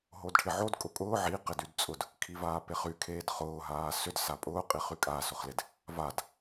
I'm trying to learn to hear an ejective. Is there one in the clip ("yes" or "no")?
yes